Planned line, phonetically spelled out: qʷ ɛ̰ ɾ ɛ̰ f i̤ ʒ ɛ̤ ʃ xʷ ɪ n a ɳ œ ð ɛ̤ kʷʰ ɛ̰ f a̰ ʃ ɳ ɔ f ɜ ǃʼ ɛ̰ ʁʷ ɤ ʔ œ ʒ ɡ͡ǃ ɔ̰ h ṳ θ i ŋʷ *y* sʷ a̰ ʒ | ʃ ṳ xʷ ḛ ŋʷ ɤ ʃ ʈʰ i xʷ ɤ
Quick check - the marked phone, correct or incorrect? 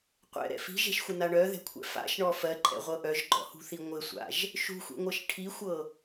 incorrect